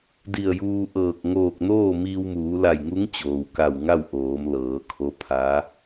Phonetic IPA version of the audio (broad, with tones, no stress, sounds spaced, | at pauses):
d i˧˩ ə̯ j uː˧ ʔ ɤː˧˩ k̚ ŋ oː˧˩ k̚ n oː˥˨ m iː˧ w m uː˩˧ l a˧˩ j ŋ u˧˥ ŋ t͡ɕ oː˩ w k a˧˩ w ŋ a˥˨ w ʔ oː˩˧ m l ɤː˩˧ kʰ o˧˥ pʰ a˧˥